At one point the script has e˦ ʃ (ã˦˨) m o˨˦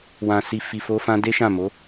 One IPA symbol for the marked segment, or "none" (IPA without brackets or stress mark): ã˦˨